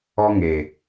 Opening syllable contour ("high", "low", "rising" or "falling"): high